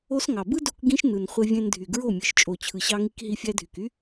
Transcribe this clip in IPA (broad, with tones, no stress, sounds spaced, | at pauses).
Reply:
o˦ s ŋ ɑ˨ b ɯ˦ d o˧ k ɡ ĩ˦ ʃ n ɯ˨ n χʷ e˧ vʲ ẽ˧ n dʱ y˨ ɡ ɹ o˦˨ mʲ ɯ˨ ʃ t͡ʃʼ o˨ t͡ɕʰ ɯ˨ ɕ ɑ˧ ŋ i˧ k ɦ i˦ fʲ æ˦ dʱ y˨ k y˦